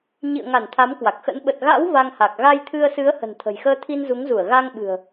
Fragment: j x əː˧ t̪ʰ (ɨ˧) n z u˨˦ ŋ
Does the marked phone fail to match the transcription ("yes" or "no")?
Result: yes